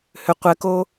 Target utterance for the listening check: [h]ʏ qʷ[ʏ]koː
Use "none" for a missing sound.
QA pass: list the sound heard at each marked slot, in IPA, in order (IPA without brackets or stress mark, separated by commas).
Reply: h, ɛ